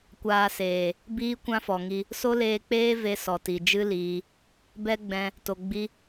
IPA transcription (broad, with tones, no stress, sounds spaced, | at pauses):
kʷ aː˧ s eː˨ | b iː˦ kʷ ã˦ f ɔ˨ ŋ i˧ | s o˦ l eː˧ k͡p eː˦ v e˦ s ɔ˨ t i˨ d͡ʒ ɨ˦ l iː˧ | b ɛ˦ ɡ͡b ɛ̃˧ | t o˨ ɡ͡b i˦